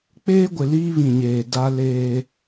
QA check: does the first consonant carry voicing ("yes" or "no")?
no